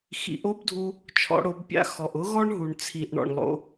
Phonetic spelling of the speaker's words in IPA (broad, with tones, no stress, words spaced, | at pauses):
xḭ˩˧ʔo˥bdʱu˧ | t͡ʃʰɔ̰˩˧ɽo˩˧b pʲa̰˧ xɔ˩ʔʊ˧˥ɣɔ˥ɳ ɦu˩ɳ t͡sʰi˩ʔɳɔ̰˩ɳlˠo̰˩˧